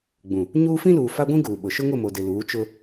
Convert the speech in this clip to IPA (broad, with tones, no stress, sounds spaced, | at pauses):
ɡ͡b ũ˨ | ɲ uː˦ f ĩ˦ l uː˨ f a˦ ɡʷ ĩ˦ ɡ uː˨ ɓ ʊ˨ ʃ ʊ˦ ŋ ʊ˦˨ m o˨ d ɪ˨ l uː˨˦ t͡ʃ ʊ˦